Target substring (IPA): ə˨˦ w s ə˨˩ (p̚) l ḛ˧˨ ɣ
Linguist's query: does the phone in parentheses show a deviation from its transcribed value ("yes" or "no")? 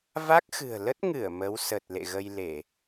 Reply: yes